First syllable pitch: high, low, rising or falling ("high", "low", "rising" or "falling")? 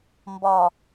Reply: low